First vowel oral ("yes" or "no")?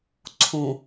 no